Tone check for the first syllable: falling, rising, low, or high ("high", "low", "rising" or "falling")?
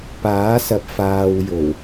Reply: rising